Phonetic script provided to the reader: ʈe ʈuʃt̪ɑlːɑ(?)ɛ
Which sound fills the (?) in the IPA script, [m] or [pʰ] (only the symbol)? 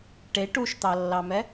m